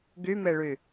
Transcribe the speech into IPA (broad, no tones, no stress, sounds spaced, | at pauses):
ɡ y m e ɭ y